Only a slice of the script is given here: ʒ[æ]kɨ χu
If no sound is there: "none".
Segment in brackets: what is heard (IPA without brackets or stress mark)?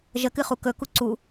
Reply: ə